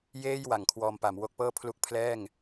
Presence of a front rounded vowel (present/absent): absent